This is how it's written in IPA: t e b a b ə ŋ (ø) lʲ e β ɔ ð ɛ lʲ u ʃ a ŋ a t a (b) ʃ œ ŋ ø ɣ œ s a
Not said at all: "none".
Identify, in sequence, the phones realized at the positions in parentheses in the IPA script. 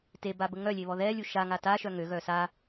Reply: œ, none

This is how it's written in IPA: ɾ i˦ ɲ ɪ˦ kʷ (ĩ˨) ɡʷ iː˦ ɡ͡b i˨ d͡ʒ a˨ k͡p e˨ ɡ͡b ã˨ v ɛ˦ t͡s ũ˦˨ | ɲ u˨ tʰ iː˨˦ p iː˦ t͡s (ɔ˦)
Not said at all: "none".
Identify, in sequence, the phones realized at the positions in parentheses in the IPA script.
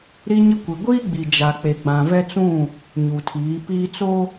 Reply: i˨, o˦

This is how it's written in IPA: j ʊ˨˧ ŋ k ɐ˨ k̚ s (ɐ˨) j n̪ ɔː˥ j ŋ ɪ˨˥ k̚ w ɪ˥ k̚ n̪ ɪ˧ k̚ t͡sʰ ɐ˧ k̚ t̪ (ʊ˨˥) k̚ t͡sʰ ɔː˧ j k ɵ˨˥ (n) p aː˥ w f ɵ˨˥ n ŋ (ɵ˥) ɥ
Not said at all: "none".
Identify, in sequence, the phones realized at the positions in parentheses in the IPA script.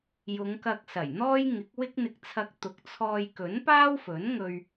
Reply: ɐ˨˩, ʊ˨, n, ɵ˧

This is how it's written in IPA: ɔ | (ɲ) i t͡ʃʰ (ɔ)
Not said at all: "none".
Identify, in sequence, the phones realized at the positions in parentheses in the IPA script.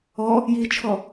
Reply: j, ɔ

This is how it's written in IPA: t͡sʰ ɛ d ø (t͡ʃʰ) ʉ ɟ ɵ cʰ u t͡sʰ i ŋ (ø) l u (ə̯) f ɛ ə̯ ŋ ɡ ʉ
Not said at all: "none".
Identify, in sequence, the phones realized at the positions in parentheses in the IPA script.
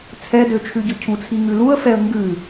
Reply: t͡ʃʰ, ʉ, ə̯

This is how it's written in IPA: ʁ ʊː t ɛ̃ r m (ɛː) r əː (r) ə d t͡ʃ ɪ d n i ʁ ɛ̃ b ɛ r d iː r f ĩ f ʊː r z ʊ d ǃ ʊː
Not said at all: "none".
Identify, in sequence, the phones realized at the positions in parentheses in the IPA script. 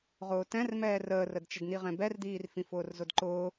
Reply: ɛː, r

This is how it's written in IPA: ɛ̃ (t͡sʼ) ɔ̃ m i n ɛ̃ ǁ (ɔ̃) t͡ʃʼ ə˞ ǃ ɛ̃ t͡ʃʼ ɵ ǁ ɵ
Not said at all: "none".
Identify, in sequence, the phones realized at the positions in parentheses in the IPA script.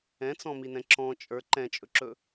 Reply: t͡s, ɔ̃

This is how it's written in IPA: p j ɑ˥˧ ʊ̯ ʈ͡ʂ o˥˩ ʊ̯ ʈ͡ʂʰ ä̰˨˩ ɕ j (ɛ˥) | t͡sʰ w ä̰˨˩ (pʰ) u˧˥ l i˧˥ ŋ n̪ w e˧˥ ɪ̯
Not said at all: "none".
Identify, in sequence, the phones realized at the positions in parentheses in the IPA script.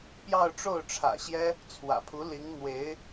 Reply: ɛ˥, pʰ

